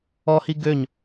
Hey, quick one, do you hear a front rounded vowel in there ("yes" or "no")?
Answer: yes